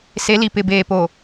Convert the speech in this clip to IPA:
s e˨˦ l i˨ p ɪ˨ b eː˨ p o˨

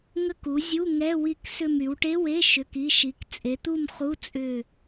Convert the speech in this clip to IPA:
ŋ ə˦˨ k u˩˧ zʲ u˧˥˧ ŋ ɛ˧˥˧ w i˦˨ k s ʏ˦˨ m y˩˧ w ʈ e˧˥˧ w e˧˥˧ ʃ ʏ˩˧˩ k i˩˧˩ ʃ i˩˧ k t͡sʼ e˩˧ t̪ u˦˨ m χ u˧˥˧ t͡sʼ ʏ˦˨

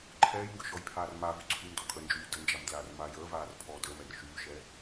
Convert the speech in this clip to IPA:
ǃʰ ɛː j ŋ ɡ ʏ ʃ ɔ j pʰ aː r m a v y ǀʰ y m d ɔ kʼ ə n d͡ʒ yː d ə n d͡ʒ a m d l aː r m aː j əː v aː r pʰ ɔː d əː m ɛ r ʃ yː ʃ ɛ

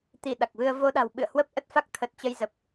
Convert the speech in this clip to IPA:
t̪ i˧˩ ɗ a˨˩ k̚ v ɨ˧ ə̯ v o˧ ɗ a̤˨˩ w ɓ ɨ̰˧˨ ə̯ h w ə˦˥ p̚ ʔ ə˦˥ t̚ f a˦˥ k̚ t̪ʰ ə˨˩ t̚ t͡ɕ ə˧ j z ə˨˩ p̚

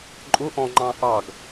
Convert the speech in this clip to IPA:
ǃʼ ʊ ʔ ɔ̃ ŋ͡ǃ ɑ̃ ʔ ɑ ɡ

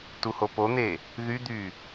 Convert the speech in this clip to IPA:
t u h o p o n̪ e | ð y d̪ y

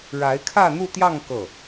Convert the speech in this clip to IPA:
ɻ a˧˥ ɪ̯ kʰ ä˥˧ n̪ u˥˧ t̪ j ɑ˥˧ ŋ k ɤ˥˩

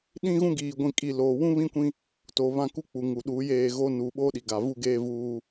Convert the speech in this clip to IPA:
ɗ ĩ˦ ɣ ũ˦ ɡ iː˨ ɡʷ ĩ˨ kʼ i˨ l oː˨ w ũ˦ β ĩ˦ kʷ ĩ˦ | t oː˨ β ã˦˨ k u˦ k͡p u˨ ŋ u˨ ɗ uː˨˦ j eː˦˨ ɣ oː˦ n uː˨ ɓ oː˦ ɗ i˨ ɡ a˨ v u˦ ɡ eː˦ v uː˦

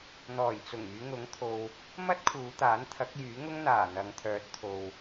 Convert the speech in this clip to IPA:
n̪ ɔː˨˩ j t͡s ʊ˨˩ ŋ yː˨˧ ŋ ʊ˨˥ ŋ t̪ʰ o˨ w | m ɐ˥ t̚ kʰ uː˨˧ t̪ aː˨˥ n t̪ʰ ɐ˨˥ k̚ j yː˨˥ ŋ ʊ˥ ŋ n̪ aː˨˩ n̪ ɐ˨˧ ŋ t̪ʰ œː˨˥ t̚ t̪ʰ o˨ w

